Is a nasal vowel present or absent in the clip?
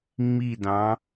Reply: present